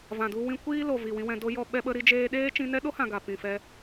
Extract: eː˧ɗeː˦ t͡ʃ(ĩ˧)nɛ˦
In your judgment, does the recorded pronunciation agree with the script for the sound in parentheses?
yes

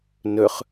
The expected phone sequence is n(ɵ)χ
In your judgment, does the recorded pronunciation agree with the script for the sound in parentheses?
yes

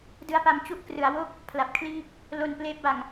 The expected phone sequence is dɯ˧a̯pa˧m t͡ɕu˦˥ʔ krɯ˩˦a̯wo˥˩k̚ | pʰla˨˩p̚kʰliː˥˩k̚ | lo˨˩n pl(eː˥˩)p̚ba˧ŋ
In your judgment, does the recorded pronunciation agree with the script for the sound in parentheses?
no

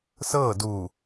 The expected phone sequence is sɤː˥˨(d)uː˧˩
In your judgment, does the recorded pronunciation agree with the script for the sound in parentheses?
yes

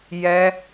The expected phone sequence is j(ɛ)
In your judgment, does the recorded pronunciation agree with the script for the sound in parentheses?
yes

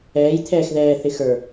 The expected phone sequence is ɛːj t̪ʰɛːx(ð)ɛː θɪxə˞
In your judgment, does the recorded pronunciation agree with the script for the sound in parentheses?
yes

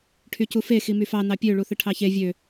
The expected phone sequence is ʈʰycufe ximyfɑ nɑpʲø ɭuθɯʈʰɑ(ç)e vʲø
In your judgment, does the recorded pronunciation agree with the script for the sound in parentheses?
yes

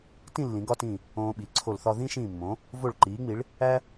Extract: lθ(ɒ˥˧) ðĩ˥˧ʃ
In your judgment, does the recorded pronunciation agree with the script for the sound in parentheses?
yes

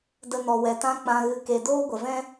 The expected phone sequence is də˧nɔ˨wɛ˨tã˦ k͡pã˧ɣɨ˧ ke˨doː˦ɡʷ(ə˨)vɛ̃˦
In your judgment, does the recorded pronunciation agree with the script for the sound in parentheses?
yes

